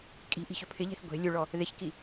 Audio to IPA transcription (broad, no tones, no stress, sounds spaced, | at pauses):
kʼ i̤ ʔ i̤ ç ɵ pʰ ɪ ʎ e̤ θ ɡʷ e̤ lʲ u ɭ ɔ | ð ɪ ç k i